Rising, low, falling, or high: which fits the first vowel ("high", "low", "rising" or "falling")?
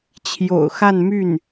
low